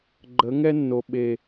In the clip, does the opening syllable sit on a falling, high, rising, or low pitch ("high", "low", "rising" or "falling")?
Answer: rising